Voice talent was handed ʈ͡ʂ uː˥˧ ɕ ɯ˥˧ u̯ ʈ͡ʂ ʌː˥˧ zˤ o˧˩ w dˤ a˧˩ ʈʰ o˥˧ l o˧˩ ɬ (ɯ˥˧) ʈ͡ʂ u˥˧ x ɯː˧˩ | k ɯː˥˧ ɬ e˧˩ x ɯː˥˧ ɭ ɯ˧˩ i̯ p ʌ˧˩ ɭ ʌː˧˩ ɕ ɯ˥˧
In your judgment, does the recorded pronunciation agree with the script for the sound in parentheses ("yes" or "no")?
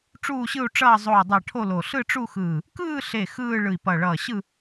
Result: yes